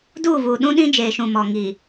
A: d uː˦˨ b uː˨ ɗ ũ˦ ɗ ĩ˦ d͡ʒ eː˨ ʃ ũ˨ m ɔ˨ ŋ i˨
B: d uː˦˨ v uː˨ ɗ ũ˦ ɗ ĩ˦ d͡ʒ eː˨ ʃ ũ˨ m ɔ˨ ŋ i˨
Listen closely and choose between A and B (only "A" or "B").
B